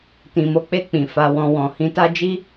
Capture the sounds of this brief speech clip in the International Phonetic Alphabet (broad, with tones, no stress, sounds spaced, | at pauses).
t ĩ˨ m o˧ k͡p e˧ k͡p ĩ˨ f a˧ w ɔ̃˧ w ɔ̃˨ h ĩ˧ t a˦ d͡ʒ i˦